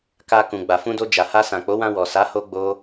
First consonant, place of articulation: velar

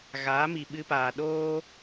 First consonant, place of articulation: velar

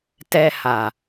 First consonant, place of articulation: alveolar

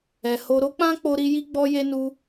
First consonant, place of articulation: glottal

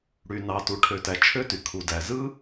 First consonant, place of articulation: retroflex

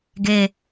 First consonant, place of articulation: velar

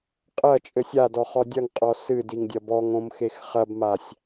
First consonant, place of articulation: uvular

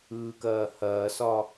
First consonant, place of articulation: velar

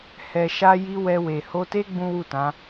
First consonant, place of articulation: glottal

